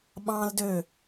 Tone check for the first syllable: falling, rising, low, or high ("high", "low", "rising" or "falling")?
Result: high